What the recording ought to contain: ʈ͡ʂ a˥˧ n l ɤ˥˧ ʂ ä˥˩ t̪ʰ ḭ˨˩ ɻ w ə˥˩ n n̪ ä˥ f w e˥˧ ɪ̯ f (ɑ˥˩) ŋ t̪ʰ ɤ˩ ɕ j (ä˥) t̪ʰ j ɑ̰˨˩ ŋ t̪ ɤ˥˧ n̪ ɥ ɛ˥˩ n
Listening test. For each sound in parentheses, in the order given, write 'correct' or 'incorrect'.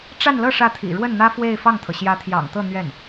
correct, incorrect

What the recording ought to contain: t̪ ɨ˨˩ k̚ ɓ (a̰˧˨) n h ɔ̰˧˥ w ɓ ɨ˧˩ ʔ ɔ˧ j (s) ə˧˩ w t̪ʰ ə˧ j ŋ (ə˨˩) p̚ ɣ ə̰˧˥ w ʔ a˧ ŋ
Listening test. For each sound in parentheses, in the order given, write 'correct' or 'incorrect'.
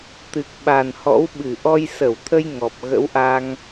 incorrect, correct, incorrect

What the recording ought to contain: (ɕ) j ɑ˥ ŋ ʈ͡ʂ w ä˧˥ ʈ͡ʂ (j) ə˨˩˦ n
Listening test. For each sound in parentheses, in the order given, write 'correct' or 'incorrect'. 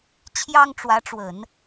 incorrect, incorrect

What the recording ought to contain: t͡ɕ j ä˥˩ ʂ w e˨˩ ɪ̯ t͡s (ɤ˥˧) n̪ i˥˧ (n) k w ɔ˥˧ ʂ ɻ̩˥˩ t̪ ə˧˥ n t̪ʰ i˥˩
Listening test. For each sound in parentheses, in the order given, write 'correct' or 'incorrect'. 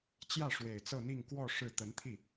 correct, incorrect

